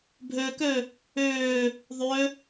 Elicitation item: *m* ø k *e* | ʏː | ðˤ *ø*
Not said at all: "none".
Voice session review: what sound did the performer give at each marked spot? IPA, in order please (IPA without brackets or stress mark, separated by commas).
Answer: bʱ, ø, ø